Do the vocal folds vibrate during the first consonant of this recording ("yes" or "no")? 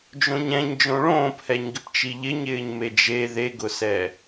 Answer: yes